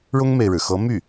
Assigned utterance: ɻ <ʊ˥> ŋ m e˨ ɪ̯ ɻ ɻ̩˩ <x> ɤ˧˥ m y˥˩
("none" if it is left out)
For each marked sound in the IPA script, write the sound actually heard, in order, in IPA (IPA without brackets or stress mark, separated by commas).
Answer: ʊ˥, x